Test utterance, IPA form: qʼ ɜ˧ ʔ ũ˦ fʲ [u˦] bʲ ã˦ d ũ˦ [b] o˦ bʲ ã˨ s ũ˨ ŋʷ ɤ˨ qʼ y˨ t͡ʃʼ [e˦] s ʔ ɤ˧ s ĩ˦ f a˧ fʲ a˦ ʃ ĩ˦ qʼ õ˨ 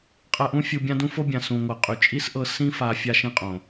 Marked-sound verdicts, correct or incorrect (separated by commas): incorrect, incorrect, incorrect